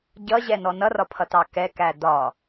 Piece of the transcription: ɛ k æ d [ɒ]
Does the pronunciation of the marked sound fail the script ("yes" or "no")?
no